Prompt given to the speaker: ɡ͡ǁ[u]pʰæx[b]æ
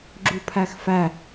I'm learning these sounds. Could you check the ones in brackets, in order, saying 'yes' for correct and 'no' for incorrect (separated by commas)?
yes, no